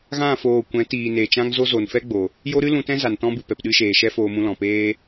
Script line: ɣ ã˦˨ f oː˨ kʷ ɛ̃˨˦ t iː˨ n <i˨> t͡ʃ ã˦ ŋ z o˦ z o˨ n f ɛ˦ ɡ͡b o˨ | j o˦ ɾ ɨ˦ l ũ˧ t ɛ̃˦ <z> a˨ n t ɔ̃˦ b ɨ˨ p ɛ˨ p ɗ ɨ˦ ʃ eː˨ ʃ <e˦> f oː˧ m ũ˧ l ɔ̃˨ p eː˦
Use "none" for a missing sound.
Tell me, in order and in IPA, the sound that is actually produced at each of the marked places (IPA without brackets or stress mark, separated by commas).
e˨, z, ɛ˦